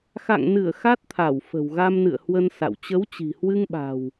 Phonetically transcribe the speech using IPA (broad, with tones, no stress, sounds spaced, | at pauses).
x a̰˧˨ ŋ n ɨ˧˩ ə̯ x a˦˥ t̚ t̪ʰ a˧˩ w f ə̤˨˩ w ɣ a˧ m n ɨ̰˧˨ ə̯ h w ə˧ n s a̰˧˨ w t͡ɕ ə˨˦ w t͡ɕ i̤˨˩ h w ɨ˧ ŋ ɓ a̤˨˩ w